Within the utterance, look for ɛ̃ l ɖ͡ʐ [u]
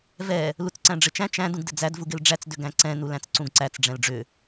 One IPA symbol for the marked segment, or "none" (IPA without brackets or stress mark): ʏ